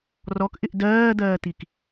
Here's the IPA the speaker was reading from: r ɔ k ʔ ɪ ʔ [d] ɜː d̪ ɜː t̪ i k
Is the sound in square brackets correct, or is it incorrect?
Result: correct